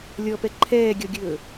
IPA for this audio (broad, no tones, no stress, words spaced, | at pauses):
lʲɔpɛ ǃʰɛːɡʲɔɡʲɵː